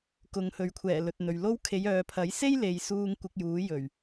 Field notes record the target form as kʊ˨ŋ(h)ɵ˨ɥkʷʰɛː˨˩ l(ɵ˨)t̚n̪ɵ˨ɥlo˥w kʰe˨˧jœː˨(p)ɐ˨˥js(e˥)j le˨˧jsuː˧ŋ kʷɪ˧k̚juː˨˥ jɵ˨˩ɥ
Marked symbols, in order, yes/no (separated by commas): yes, yes, no, yes